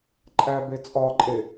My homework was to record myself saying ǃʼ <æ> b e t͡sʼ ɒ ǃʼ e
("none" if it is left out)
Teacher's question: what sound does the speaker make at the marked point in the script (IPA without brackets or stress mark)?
æ